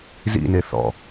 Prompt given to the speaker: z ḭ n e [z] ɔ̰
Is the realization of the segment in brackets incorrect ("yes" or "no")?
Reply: yes